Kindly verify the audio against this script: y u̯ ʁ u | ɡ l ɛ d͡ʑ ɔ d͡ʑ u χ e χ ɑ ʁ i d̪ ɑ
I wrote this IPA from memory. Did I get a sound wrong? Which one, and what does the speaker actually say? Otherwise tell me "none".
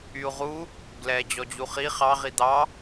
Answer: e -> i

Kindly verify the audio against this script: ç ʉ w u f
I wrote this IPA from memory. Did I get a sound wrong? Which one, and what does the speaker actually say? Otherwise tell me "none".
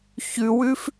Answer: u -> ʉ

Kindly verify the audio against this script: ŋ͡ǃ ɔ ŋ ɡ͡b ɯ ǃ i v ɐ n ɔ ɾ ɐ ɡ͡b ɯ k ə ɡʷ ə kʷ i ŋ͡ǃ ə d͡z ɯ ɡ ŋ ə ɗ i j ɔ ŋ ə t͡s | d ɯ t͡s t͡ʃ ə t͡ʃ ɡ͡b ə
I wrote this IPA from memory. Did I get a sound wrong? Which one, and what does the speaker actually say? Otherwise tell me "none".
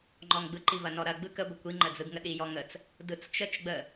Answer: none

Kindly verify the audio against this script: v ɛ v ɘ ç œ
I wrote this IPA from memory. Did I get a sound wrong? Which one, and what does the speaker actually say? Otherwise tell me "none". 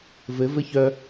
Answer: ɛ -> ɘ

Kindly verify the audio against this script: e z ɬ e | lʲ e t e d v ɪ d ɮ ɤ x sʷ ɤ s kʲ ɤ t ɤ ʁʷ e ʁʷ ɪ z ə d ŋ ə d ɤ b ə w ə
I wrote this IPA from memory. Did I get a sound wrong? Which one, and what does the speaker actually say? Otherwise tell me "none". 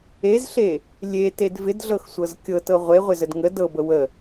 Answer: s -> z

